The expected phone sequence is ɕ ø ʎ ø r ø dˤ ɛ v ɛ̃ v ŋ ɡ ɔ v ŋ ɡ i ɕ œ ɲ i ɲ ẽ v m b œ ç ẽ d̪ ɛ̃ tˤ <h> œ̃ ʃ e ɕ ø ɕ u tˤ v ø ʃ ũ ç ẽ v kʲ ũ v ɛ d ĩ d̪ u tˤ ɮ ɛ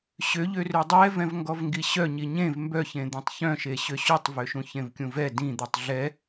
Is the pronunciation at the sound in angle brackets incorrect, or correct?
incorrect: ç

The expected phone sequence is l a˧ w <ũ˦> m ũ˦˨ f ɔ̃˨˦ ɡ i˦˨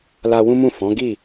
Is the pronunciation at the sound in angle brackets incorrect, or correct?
correct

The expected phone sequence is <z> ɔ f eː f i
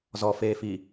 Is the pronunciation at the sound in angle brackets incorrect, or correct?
correct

